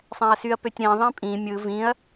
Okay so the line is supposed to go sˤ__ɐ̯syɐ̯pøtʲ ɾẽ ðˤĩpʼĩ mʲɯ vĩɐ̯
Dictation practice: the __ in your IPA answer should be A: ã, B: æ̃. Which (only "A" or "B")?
B